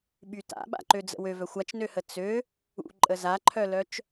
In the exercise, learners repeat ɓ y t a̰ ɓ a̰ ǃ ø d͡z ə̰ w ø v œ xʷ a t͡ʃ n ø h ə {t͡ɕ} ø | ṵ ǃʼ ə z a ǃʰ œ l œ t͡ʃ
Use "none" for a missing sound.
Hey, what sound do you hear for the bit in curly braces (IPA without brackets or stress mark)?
t͡s